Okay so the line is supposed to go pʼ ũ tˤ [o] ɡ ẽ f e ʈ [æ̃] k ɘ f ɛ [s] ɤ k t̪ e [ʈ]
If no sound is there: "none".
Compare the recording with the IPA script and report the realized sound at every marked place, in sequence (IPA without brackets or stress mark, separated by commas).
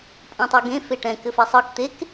ɤ, ɛ̃, sˤ, k